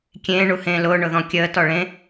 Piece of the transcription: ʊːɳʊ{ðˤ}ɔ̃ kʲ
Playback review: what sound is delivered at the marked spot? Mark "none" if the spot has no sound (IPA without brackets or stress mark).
ð